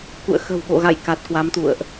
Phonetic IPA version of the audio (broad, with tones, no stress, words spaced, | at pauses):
kṵ˧˨ə̯ xə̤˨˩wɓo̰˧˨ɣa̰˧˨j ka˨˩t̚kwa˨˦mt̪ṵ˧˨ə̯ʔ